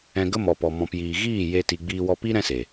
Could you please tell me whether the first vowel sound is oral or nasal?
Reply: nasal